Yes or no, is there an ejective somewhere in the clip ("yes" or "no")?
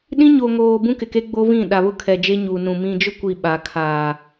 no